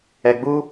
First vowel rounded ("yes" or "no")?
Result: no